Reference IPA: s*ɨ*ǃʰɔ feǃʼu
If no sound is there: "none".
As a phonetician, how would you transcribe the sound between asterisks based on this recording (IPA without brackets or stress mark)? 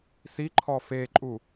i